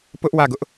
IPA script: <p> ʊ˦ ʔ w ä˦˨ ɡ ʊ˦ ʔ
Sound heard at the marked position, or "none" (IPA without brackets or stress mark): p